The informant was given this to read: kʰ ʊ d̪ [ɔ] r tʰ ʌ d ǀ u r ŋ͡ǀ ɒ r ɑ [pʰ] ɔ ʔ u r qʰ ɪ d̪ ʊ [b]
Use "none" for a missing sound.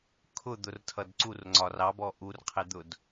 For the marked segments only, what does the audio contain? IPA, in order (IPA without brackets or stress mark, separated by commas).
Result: ʊ, b, d